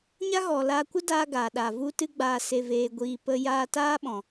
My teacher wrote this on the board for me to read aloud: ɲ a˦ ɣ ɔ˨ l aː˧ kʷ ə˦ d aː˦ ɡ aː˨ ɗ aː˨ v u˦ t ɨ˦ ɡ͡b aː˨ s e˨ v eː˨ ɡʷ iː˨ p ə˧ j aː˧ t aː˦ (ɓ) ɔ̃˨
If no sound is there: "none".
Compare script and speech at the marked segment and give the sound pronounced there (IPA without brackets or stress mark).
ɓ